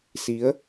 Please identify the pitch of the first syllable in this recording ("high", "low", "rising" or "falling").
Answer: rising